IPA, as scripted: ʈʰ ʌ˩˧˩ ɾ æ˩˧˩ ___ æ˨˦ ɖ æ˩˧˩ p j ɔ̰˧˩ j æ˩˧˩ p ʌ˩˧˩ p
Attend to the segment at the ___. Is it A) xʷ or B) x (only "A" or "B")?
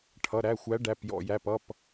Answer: A